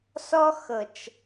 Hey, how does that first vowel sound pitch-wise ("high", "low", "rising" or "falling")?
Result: high